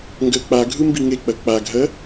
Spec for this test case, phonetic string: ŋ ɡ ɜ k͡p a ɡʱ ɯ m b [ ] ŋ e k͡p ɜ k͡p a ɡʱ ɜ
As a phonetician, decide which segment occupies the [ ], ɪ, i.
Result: i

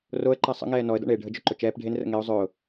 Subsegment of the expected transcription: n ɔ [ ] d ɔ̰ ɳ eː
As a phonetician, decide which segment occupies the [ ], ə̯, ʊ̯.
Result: ə̯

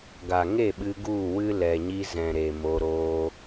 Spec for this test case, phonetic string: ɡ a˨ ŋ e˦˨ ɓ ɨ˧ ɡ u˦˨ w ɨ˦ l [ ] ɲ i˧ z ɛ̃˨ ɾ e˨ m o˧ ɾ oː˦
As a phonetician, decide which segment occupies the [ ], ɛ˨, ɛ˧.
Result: ɛ˨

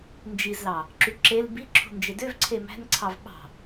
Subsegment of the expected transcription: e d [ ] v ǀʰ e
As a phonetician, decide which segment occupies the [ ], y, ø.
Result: ø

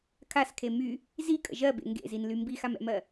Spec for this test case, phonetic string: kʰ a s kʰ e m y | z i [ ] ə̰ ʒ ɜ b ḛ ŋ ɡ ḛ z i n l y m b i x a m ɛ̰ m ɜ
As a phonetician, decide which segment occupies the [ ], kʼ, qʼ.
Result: kʼ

